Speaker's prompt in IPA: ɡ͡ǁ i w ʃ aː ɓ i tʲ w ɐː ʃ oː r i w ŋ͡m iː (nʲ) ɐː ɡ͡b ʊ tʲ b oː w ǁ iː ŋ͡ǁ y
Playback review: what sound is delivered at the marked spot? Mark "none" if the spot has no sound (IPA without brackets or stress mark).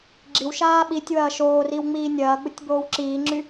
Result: nʲ